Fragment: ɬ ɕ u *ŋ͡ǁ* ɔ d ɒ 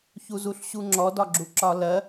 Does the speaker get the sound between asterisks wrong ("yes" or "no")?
no